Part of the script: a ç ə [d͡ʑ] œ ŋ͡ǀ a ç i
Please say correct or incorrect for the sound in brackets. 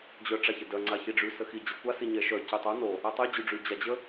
incorrect